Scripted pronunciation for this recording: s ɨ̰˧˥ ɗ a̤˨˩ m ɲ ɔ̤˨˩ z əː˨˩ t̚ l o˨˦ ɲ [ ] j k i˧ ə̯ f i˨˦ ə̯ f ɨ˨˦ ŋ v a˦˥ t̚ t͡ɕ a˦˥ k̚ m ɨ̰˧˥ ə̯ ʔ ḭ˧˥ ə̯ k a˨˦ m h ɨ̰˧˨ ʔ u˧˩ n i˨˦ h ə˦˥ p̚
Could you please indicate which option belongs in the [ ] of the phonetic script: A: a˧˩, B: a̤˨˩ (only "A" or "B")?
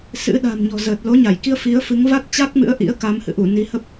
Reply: A